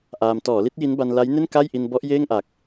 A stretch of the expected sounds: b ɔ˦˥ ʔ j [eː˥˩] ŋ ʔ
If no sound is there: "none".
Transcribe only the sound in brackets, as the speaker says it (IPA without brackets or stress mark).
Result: eː˥˩